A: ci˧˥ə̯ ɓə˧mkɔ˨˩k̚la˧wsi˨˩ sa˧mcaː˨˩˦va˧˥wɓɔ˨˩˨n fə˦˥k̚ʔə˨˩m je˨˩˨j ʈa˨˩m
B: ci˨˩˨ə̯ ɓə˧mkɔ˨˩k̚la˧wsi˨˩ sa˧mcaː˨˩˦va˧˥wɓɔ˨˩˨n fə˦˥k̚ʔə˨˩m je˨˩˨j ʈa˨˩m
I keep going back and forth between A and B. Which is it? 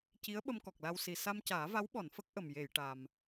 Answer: A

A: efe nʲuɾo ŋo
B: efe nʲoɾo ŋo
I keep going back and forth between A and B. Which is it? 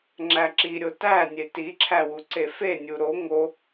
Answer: A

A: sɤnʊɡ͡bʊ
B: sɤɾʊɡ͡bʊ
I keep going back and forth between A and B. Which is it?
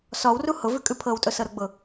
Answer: B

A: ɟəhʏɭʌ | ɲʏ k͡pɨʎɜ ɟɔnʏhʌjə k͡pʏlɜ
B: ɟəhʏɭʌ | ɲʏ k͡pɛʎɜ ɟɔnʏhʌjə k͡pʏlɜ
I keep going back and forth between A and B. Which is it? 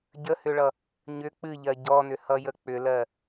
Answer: A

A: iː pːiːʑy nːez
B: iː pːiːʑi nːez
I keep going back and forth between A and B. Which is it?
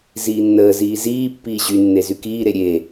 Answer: A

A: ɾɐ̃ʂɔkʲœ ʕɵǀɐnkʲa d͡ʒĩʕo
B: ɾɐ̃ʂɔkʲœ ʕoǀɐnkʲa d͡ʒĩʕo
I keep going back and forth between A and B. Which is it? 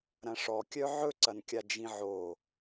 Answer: A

